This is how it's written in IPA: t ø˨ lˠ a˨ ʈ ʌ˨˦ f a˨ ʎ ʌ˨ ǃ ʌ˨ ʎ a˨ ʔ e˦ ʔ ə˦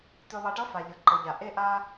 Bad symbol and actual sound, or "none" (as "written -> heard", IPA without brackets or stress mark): ə˦ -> a˦